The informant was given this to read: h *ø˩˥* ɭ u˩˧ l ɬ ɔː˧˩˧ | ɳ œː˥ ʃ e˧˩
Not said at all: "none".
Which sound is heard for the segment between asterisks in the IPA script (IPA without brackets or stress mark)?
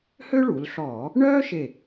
ø˥